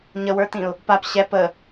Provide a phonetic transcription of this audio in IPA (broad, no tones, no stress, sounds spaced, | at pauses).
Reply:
ɲ ə w ə˞ t ĩ ʊ̯ | p a p ɕ ɛ p ə